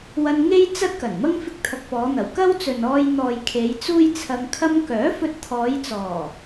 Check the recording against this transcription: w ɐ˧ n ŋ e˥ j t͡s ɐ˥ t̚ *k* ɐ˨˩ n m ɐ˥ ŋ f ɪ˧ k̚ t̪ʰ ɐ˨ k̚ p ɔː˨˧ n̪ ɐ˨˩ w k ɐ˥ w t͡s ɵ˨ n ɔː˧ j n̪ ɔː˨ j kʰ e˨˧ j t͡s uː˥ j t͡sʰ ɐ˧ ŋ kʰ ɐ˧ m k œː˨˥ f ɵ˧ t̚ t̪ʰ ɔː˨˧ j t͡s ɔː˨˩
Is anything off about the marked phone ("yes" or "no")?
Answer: no